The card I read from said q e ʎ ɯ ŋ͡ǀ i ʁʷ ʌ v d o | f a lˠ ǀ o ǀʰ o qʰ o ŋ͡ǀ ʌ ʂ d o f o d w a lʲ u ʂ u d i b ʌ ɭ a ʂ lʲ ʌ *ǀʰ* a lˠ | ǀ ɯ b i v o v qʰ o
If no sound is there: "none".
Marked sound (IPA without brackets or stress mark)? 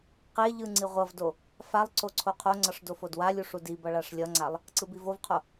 ŋ͡ǀ